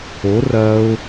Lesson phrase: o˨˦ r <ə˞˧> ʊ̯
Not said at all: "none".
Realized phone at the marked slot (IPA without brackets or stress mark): ɐ˧